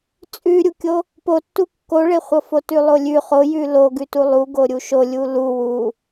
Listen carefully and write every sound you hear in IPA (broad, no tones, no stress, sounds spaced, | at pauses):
t͡sʼ ʉ ɾʲ u kʲ o | p o tː u kː o ɭ e χʷ ɤ f o t ʉ lˠ o lʲ ʉ χ o j ʉ l o ɡ ʉ t u lˠ u ɡ o ɾʲ u ʃ o lʲ u l u w u